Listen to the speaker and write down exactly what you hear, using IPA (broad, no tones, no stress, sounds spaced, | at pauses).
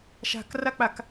ʃ a̤ k r a k͡p a k